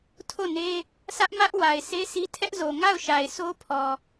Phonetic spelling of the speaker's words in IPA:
tʰo˦˨ne˦ | sä˦ʔmä˦ʔwa˨ɪ̯ se˦si˦tʰɛ˦ʔzo˨ ŋa˦˨ʊ̯ʃa˨ɪ̯sʰo˦pʰɔ˨

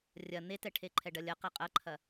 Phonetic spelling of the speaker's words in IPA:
rʲɐ n̪etɛ ʈʰeǃʰɛɖɐlʲɐ qeqʼɐǃʰɐ

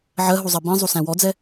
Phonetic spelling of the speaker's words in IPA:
ʕɜɦuzˤɜ bĩzˤusæ̃ wɔd͡zɛ

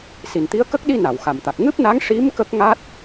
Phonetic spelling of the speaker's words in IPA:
si˨˩nt̪i˧˥ə̯kə˦˥k̚ ɗi˧ na˨˩˨wxa˨˩mt̪a˨˩k̚ ŋɨ˦˥p̚na˧˥ŋ ʂi˧˥m kə˦˥k̚ŋa˦˥t̚

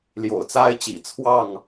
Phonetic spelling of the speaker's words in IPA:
ljo̰˨˩ʊ̯t͡sa˦ɪ̯t͡ɕḭ˨˩ t͡sʰwɑ˥˨ŋ

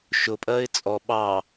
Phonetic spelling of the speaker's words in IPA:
ʃʊpʼɜɪ̯ t͡sʼɔ ɓɑ

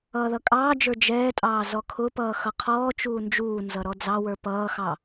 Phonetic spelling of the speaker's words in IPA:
ʌːðʌkʼɑːd͡ʒə˞ d͡ʒɛːtʼɑː zɔkʰʊpʌː xʌqʰɔːt͡ʃuː nd͡ʒuːnzʌ ɾɔd͡zɑwə˞ pʌːxɑ

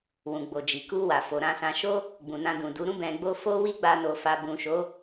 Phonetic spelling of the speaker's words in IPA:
wũ˨ɡ͡bo˨d͡ʒi˨ ku˧ wa˨fo˨ɾã˧sã˧ ʃo˦ | ɡ͡bũ˨nã˧dũ˨du˨˦ ɾũ˧bɛ̃˨ɡ͡bo˧ fo˦wi˦ɡ͡ba˧ no˨fa˨bũ˨ ʃo˨˦

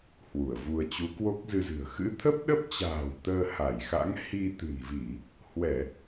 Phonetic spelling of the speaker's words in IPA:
hwu˧˩ə̯vu˧ə̯ t͡ɕu˨˦kwo˦˥k̚zɨ˧zɨ̤˨˩ə̯ xɨ̰˧˥t̪ʰə˦˥p̚ɗə˦˥p̚t͡ɕa̤ː˨˩w t̪əː˧ ha˧˩jxa̰˧˥ŋ hi˧t̪ɨ̤˨˩nvi˧˩˨ | hwɛ˧˩˨

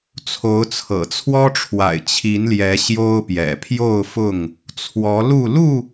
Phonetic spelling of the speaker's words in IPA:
t͡sʰo˨˦ʊ̯t͡sʰɤ̰˨˩t͡sʰwɔ˦ʈ͡ʂʰwa̰˨˩ɪ̯ t͡ɕʰi˨˦nljɛ˨˦ ɕjo˦ʊ̯pjɛ̰˨˩ pʰjo˥˨ʊ̯fʊ˥˨ŋ | t͡sʰwɔ˨˦lu˥˨ lu˥˨

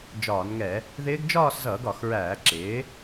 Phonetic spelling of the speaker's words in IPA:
d͡ʒɒː˧˩˧nŋɛ˧˩˧ | ðɪː˦˥ɡ d͡ʒɒː˥˧szʌː˧˩˧ɡɒ˧˩˧x ɹæː˧˩˧ǁɪː˩˥

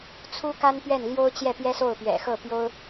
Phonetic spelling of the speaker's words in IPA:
t͡sʰu˥ka˥npɥɛ˥˩n ljo˥ʊ̯t͡ɕjɛ˥˩pjɛ˥so˥˩ʊ̯ pɥɛ̰˨˩xɤ˥˩pjo˥ʊ̯

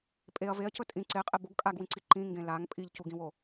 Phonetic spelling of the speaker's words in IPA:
pʼeɐ̯ veɐ̯cɵ tʼĩ ǀeqʼe boɡ kʼaɡwĩǀi ǃĩŋɡẽ laŋ pʼiʎcuɡĩwo

